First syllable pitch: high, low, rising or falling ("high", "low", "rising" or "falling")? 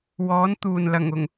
rising